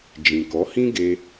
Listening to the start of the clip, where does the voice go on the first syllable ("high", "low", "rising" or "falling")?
low